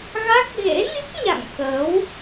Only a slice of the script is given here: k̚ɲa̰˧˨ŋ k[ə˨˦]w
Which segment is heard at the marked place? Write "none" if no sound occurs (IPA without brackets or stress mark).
ə˨˦